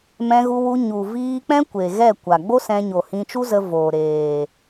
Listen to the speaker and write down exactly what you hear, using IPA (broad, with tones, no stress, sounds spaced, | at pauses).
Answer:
m ɛ̃˧ ɣ u˧ w u˧ ɲ u˨ v iː˧ k͡p ɛ̃˦ kʷ e˨ ɣ ɛ˦˨ kʷ a˨ ɡ͡b o˦ s ɛ̃˧ ɲ o˨ h ĩ˧ t͡ʃ u˦ z ə˧ v oː˨ ɾ eː˨